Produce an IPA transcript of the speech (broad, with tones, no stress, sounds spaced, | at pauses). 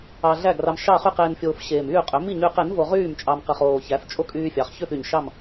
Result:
ɑ˧ ɮ æ˥˨ ɡ r ɑ˧ m ʃ ɑ˥˨ χ y˥˨ q eː˧ n fʲ oː˧ f ɕ eː˨˩ m yː˥˨ qʼ ø˩˥ m i˥˨ ɲ yː˧ q e˩˥ n v o˧ ʁ yː˥˨ m t͡ʃʼ ɑ˧ m q ɯ˨˩ χ oː˨˩ ç æ˩˥ f t͡ʃʼ o˥˨ kʼ yː˧ fʲ ɑ˩˥ χ ç ø˥˨ f y˨˩ ɲ ʃ ɑ˥˨ m